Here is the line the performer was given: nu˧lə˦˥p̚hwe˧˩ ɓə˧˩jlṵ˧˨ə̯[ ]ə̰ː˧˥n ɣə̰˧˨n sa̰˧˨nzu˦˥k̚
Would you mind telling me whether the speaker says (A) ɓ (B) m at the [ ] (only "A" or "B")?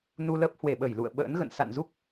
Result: A